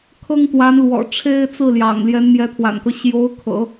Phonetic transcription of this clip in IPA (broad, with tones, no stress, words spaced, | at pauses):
kʰɤ˥ŋt̪wa˧˥n lwɔ̰˨˩ ʈ͡ʂʰe˥˧ɪ̯t͡sɹ̩˥˩ljɑ̰˨˩ŋ ljɛ˧˥nmjɛ˧˥t̪ʰwa̰˨˩nkɤ˦ ɕjo˧˥ʊ̯kʰɤ̰˨˩˦